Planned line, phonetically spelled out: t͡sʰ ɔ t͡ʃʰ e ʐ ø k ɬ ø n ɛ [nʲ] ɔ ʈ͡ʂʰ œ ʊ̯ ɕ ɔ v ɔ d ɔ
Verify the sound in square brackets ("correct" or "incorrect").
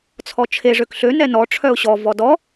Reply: incorrect